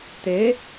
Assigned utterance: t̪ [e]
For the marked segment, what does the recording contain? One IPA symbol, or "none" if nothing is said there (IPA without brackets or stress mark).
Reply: e